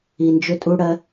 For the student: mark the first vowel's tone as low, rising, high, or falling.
low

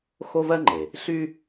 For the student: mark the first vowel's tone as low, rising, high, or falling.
high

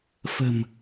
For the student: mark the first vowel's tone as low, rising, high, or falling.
low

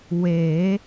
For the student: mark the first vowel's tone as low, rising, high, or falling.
rising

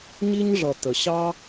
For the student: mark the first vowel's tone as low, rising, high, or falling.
high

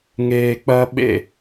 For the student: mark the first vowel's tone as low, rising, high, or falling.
low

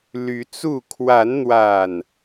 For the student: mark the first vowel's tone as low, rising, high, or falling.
rising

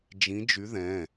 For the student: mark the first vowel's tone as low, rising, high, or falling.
rising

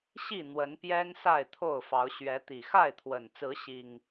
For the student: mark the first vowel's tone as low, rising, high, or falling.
falling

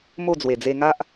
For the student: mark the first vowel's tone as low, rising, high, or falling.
falling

